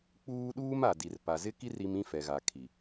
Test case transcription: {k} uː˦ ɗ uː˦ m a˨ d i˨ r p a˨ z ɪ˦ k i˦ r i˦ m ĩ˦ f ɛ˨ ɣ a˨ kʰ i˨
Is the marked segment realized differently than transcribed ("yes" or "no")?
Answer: yes